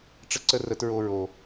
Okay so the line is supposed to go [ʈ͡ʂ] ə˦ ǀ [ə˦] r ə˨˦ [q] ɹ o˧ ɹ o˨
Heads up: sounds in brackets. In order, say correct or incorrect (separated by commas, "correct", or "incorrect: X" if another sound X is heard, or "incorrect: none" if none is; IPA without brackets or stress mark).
correct, correct, incorrect: t